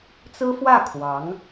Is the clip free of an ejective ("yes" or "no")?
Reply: yes